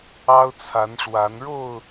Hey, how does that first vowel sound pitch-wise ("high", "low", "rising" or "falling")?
high